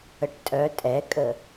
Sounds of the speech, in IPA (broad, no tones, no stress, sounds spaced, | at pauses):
ə ʈ tʼ œ tʼ ɛ kʼ ə